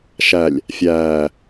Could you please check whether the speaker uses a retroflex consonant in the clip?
no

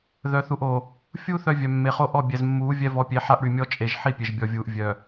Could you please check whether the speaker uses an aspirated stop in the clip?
no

